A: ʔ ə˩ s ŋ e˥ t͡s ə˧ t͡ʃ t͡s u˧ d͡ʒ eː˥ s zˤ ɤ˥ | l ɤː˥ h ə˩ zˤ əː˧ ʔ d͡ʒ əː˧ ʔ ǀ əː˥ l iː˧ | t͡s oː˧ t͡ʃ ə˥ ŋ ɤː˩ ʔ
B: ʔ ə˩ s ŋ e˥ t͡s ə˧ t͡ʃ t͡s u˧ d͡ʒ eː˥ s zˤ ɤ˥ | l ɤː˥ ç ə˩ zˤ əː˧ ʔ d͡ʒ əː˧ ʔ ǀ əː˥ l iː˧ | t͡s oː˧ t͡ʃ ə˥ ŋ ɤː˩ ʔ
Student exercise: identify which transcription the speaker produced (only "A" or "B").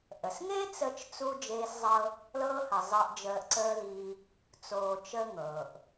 A